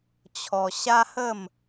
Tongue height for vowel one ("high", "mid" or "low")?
mid